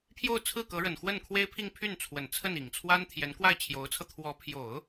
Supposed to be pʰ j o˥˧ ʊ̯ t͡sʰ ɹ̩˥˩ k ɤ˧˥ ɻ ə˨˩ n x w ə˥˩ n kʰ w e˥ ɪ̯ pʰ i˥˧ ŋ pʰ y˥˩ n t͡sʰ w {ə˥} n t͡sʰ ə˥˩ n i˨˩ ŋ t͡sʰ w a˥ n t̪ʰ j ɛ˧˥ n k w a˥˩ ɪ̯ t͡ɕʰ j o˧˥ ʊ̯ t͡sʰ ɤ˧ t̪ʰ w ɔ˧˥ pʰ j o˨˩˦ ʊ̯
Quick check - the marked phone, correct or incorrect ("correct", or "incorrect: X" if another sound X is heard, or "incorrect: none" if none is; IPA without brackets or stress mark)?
incorrect: ə˨˩